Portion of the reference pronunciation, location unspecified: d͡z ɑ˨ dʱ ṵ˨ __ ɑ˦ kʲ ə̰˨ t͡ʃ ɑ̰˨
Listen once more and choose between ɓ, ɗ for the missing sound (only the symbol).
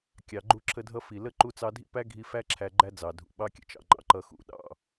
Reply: ɓ